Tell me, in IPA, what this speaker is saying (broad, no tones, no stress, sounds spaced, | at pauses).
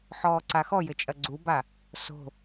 ħ ɔː ǀ a x ɔ j ɘ t͡ʃʼ ɐ ɡ͡ǀ u b a | s o̤